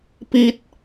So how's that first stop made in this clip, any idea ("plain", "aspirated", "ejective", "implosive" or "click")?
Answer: plain